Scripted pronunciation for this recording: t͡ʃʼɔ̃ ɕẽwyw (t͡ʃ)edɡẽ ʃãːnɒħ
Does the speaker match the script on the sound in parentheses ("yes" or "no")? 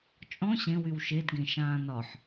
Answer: no